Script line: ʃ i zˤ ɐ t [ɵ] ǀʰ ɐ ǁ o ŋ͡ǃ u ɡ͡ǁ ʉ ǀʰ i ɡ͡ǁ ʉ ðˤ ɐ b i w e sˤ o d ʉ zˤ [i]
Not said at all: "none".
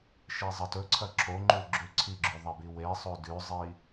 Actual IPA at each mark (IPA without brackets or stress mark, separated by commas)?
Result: ɵ, i